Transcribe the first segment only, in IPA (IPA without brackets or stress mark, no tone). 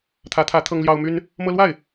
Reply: t̪ʰ